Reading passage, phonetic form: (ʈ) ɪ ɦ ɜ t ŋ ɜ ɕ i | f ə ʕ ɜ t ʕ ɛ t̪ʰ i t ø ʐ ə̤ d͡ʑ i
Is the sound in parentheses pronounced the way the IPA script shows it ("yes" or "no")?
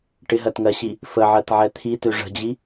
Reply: yes